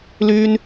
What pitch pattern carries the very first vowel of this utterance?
high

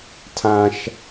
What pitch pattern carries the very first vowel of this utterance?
high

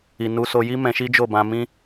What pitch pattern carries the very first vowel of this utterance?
low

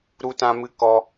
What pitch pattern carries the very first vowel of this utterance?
high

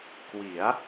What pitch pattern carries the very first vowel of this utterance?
rising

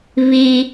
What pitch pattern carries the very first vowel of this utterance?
high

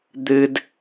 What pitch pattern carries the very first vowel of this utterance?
high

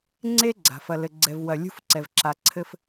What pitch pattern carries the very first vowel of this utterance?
high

